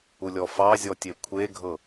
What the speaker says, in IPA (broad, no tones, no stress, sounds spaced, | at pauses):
u lʲ ɔ f ɑ zʲ ɔ tʲ e kʷʰ e ɡʱ ɤ